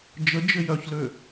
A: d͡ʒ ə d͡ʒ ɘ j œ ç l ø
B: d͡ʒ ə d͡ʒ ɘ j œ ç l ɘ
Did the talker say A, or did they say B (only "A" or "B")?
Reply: A